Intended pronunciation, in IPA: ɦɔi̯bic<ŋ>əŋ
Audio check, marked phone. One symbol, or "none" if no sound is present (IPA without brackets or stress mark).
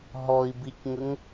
ŋ